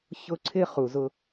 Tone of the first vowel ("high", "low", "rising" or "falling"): high